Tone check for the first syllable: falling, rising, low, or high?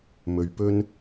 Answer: low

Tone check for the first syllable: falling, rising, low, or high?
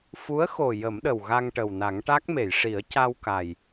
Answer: rising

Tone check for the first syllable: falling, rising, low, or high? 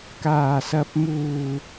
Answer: low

